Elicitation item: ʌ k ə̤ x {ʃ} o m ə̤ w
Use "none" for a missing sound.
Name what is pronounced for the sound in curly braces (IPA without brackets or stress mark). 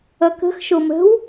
ʃ